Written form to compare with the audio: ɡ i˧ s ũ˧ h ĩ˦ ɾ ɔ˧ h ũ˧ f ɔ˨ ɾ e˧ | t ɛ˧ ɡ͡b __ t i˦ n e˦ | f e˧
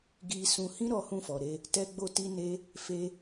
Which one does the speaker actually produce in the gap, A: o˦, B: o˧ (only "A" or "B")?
B